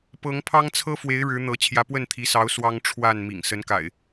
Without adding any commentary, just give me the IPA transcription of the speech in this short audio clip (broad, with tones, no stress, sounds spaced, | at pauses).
p ɤ˨˦ ŋ pʰ ɑ˦ ŋ t͡sʰ ɤ˦ f w e˨˦ ɪ̯ ɻ ɻ̩˨˦ n̪ ɤ˨˦ t͡ɕʰ j ä˨˦ p w ə˥˨ n t̪ʰ i˨˦ s ɑ˨˦ ʊ̯ s w ɑ˦ ŋ ʈ͡ʂʰ w a˥˨ n m ḭ˨˩ ŋ s ə˨˦ n k a̰˨˩ ɪ̯